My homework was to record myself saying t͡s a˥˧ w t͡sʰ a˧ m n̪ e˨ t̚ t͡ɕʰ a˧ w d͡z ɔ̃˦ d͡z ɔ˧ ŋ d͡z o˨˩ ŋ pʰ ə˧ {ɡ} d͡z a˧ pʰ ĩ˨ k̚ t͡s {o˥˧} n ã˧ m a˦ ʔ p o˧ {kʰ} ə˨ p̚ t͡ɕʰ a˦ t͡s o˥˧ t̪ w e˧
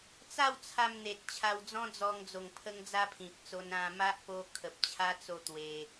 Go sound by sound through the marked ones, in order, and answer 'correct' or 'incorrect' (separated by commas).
incorrect, incorrect, correct